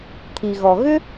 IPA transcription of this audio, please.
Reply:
t̪ʰ i˩ ɣ ɔ˩ ɣ ʏ˥

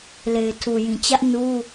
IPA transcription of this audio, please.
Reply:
l e˨ ɪ̯ tʰ u˨ j ĩ˨ t͡ɕ ä˦ ʔ n u˦

